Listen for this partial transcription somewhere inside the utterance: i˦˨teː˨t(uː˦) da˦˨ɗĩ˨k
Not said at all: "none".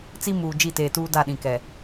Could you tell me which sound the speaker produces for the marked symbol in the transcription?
uː˦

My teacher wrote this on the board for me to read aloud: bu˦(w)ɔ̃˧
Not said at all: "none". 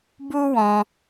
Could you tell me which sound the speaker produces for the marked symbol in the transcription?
w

